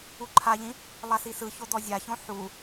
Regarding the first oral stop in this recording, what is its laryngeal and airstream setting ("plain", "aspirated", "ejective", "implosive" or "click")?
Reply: click